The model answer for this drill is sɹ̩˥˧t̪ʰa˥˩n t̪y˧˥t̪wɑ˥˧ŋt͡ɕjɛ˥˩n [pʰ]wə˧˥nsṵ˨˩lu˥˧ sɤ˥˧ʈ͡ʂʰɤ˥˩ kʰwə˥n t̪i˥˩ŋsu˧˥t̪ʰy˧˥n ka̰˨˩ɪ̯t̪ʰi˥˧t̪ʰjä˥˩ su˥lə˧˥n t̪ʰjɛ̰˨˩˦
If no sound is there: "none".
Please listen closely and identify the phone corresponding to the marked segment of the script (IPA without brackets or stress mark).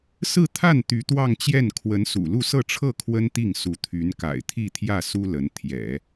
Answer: kʰ